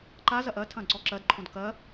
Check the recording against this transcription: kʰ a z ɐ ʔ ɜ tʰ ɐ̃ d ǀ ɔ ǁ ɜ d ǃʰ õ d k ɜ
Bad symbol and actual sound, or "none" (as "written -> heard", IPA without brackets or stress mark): kʰ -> ǃ